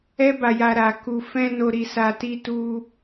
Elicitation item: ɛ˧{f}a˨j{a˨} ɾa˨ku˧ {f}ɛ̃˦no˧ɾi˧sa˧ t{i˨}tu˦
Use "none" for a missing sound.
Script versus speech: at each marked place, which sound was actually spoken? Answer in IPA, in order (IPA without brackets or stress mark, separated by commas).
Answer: b, a˨, f, i˦